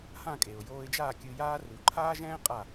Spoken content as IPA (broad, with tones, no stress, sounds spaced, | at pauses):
h ã˥˩ kʼ e˩ ʊ̯ j oː˧ ɪ̯ d͡ʒ aː˥˩ kʲ ɨ˧ j aː˥ r u˩˥ ǃʰ aː˥ ʒ ɛ̃ː˥ qʼ a˥˩